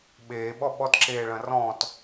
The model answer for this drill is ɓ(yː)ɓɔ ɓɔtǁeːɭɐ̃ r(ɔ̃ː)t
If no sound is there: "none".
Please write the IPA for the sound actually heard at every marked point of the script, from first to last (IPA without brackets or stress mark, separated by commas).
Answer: eː, ɔ̃ː